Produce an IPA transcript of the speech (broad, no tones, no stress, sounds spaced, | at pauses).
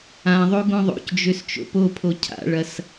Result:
ã ðˤ o ɡ õ ðˤ o̰ c d͡ʒ ø s t͡ʃ o̰ p o pʰ o cʰ a̰ ɭ ɐ s